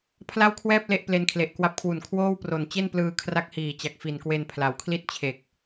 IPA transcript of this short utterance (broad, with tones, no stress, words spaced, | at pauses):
pʰla˥˩wkʰwɛː˥˩p̚ le˥˩ʔ ple˧nkʰle˨˩ʔkwa˦˥p̚kʰwu˨˩n kʰwoː˥˩wpro˨˩n t͡ɕe˥˩nplɯː˧kʰra˦˥k̚hiː˨˩ t͡ɕa˨˩k̚fi˨˩nkwe˧npʰla˩˦w kʰli˥˩t̚t͡ɕʰe˨˩k̚